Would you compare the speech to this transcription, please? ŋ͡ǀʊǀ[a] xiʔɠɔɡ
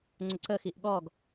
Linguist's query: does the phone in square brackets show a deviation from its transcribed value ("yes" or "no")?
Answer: yes